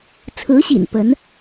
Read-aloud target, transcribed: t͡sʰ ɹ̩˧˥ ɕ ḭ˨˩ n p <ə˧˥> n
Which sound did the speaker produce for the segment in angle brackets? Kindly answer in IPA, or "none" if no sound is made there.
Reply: ə˧˥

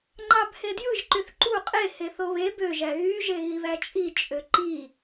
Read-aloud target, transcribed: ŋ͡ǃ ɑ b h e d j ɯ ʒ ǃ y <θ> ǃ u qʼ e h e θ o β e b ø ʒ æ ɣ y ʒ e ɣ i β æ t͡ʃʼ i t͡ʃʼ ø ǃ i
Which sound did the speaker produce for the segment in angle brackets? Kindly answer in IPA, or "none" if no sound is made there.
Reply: θ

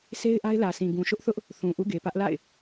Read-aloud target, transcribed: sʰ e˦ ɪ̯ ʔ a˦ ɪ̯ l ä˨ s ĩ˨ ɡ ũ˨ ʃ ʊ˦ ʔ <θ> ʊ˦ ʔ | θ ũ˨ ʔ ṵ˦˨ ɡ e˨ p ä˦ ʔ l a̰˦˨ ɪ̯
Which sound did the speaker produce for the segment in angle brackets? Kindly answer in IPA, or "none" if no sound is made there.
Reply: θ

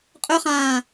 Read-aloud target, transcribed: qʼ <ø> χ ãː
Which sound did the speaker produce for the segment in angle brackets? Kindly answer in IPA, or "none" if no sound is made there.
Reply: ɵ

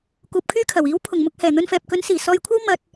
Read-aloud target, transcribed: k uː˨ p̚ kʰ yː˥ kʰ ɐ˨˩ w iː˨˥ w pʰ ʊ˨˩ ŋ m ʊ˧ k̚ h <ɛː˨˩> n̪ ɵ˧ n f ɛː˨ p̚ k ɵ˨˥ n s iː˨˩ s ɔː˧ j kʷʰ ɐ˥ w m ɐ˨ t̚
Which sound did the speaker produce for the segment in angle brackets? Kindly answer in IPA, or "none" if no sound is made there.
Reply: ɛː˨˩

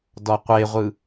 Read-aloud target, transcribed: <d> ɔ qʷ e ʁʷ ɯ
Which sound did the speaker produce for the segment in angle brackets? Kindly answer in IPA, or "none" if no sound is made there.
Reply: d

